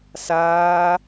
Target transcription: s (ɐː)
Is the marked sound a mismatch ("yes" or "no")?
yes